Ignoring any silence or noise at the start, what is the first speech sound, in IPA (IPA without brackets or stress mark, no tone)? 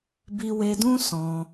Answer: b